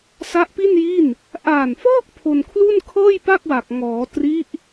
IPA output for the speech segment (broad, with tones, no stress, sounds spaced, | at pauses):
s a˦˥ ʔ p i˥˩ n j i˥˩ n | ʔ aː˨˩ n f ɔː˥˩ k̚ pʰ o˧ n kʰ l u˥˩ n kʰ ɤː˥˩ j p a˥˩ k̚ w a˨˩ k̚ ŋ ɔː˩˦ t r i˦˥ ʔ